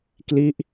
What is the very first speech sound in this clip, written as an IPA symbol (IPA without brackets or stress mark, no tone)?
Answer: k